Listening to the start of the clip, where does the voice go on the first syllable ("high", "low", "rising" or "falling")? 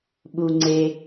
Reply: low